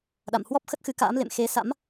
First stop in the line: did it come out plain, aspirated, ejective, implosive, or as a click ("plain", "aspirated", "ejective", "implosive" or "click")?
implosive